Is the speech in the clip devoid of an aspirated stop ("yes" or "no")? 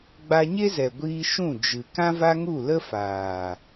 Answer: yes